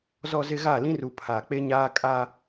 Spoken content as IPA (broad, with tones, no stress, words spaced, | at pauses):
zɔ˨zɪ˨ ɣa˦˨lĩ˦ru˨ pʰa˨k͡pe˦ɲaː˦ kʼa˦